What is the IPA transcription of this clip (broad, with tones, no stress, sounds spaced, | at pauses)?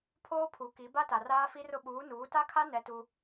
pʰ oː˦ pʰ u˨˦ k i˨˦ b a˦ t a˨ r aː˦ f i˦ r ʊ˦ ɓ uː˨˦ n uː˨˦ t a˦ kʰ a˦ n ɛ˦ t u˦